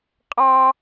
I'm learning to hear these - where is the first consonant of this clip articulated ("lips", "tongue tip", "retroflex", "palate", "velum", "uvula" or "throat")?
uvula